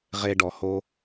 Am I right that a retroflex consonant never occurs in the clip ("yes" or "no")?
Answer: no